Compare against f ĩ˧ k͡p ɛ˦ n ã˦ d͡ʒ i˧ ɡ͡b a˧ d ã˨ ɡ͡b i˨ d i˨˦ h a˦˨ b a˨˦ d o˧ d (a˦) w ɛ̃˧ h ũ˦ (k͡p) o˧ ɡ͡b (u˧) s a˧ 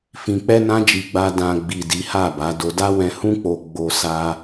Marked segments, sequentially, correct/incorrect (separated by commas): correct, correct, incorrect